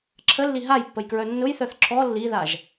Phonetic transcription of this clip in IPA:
ǁʰəlːi ɦajpːəjkɹœ nːʊjθœθ ǁɔ lːiðaʒ

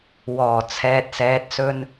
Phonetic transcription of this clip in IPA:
wɔː˨˩ t͡sʰɛː˨t̚sɛː˨t̚sɵ˧n

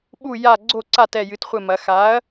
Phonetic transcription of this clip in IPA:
ɓu˦˨ ja˦˨ ɡ͡ǀo˦˨ǀa˦˨t ɛ˦˨jɨ˨˥tχʷɘ˦˨mɐ˨˥ xa˨˥ɐ̯

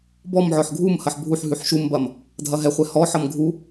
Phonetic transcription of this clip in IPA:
bɔmʕɔħ ɡʱumhɐħ bʱuħɦʉħ ʃumbɐm | dʱɐɦɛχʷɛ hɔħʌm ɡʱu

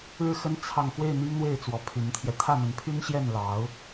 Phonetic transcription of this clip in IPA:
ɻɻ̩˥˩xə˥n t͡sʰɑ˥˧ŋ xwe˥˩ɪ̯ n̪i˥ŋn̪we˥˩ɪ̯ t͡swɔ˧˥pʰy˧˥nt̪ʰjɛ˧ t̪ʰä˥˩n̪ə˧˥npʰy˥n ɕjɛ˥˩nlɑ˧˥ʊ̯

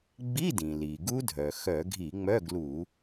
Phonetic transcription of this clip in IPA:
ɡ͡bi˧˥˧dĩ˩li˩ ɡu˦˥dʱœ˩xœ˧˩˧ ɡʱi˧˩˧ŋ͡mœ˧˥˧ɡlu˧˩˧

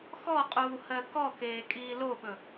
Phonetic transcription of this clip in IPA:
xɔqʼuː hɜkɔkeː kʼiːloɓɵ

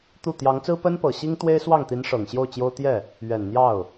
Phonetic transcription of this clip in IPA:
t̪u˥˩ t̪jɑ˧˥ŋt͡sɹ̩˥ pə˥npɤ˨˩ɕi˥ŋ t̪we˥ɪ̯swɑ˥˩ŋt̪i˧˥n ʂɤ˨˩ŋɕjo˥˩ʊ̯t͡ɕjo˥ʊ̯ t̪jɛ˥˩ | ɥɛ˨˩nn̪jɑ˥˩ʊ̯

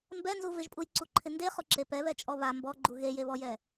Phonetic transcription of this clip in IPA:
mbɛnzu vɪʒpʼujǀuǃʰɪ ndeχʊǁe pɛβɛt͡ʃʼɔ βa mbɔɡ͡ǃu ɣejeβɔjɛ

